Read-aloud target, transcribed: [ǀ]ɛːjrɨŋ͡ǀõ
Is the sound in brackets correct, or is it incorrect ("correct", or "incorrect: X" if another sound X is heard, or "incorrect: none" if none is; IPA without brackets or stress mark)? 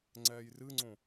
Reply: incorrect: ŋ͡ǀ